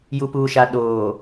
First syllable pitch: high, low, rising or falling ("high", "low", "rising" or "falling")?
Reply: low